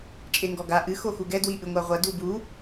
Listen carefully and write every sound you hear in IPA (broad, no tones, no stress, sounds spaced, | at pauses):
t͡ʃʼ e ŋ ɡ ɔ ɡ a ʔ ɨ x o x u ɡ ɛ d w i ʔ ɨ ŋʷ a ʁʷ ɐ d u b u